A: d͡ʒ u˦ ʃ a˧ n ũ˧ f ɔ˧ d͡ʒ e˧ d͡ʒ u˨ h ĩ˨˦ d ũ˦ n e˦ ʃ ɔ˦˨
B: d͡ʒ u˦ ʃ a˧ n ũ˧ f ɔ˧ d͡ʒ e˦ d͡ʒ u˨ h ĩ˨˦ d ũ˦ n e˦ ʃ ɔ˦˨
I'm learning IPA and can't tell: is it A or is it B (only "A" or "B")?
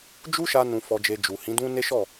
A